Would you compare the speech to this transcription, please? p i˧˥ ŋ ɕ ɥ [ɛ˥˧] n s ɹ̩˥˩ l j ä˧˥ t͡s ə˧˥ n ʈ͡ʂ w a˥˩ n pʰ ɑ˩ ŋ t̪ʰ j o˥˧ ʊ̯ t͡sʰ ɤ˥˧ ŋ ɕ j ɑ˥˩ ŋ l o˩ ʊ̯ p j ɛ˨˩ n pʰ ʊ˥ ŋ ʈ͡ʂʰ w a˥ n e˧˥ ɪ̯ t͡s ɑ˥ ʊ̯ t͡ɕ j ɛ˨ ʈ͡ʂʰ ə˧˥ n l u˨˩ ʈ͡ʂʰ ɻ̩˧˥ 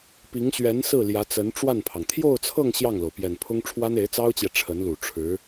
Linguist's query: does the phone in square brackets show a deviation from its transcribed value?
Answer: yes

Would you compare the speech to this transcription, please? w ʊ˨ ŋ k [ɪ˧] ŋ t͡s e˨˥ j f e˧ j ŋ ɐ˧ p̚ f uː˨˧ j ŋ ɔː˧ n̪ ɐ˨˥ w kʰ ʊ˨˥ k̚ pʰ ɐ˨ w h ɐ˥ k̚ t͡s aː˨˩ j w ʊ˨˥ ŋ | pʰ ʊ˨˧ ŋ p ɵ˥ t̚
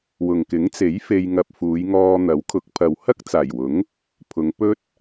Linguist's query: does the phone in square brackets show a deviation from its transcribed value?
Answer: yes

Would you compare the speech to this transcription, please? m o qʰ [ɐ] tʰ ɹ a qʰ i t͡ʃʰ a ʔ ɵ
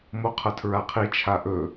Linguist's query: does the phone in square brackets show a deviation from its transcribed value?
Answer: no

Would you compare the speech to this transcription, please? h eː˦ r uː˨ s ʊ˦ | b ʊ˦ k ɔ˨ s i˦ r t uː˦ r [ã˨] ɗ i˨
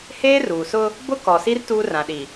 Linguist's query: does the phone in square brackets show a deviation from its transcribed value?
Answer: no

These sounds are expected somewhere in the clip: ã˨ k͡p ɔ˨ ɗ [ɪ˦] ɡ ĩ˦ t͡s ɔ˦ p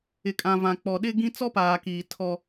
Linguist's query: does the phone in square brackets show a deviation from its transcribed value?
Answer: no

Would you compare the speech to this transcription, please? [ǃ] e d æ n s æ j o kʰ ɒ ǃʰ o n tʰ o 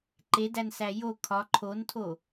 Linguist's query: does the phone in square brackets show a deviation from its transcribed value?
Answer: no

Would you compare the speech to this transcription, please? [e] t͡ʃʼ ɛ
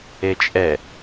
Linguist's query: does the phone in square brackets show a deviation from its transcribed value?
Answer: no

